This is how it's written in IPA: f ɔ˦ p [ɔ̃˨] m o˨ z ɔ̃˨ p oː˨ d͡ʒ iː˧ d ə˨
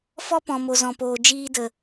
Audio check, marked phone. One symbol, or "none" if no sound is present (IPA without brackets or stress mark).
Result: ɔ̃˨